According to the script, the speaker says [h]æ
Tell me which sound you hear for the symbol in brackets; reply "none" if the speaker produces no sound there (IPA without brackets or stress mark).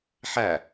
ħ